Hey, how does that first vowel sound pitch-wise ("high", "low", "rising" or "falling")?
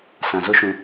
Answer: low